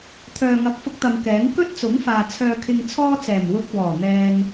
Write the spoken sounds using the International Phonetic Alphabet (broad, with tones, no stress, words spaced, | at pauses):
t̪ʰœː˨ŋɐ˨˥k̚fʊ˧k̚t̪ɐ˨m kɛː˨˥ŋ kɵ˥t̚t͡sʊ˨˥ŋfaː˨ t͡sʰœː˧kʰɪ˧ŋ t͡sʰɔː˥t͡sɛː˨˩m wʊ˧k̚ wɔː˨˩ n̪ɛː˧ŋ